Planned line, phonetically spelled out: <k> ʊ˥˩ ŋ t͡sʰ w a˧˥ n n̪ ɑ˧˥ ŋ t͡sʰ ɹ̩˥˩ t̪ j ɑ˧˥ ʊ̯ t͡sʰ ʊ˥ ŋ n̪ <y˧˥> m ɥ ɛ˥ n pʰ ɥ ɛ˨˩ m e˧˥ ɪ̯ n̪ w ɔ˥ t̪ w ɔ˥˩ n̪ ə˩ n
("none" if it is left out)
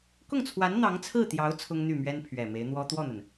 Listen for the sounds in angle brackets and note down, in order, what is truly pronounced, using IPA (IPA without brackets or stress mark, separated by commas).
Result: k, y˥˩